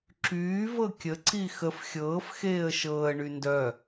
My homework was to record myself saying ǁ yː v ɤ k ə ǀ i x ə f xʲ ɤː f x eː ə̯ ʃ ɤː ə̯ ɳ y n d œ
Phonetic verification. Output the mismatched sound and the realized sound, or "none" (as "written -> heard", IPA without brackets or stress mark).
k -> kʲ